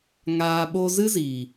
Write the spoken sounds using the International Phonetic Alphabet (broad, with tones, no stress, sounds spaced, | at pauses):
ŋ aː˧ ɓ o˧ z ɨ˦ z iː˨